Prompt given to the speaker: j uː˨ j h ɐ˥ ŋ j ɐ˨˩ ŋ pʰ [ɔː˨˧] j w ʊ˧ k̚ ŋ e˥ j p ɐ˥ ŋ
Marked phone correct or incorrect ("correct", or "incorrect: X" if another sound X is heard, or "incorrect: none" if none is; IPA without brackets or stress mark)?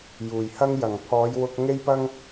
correct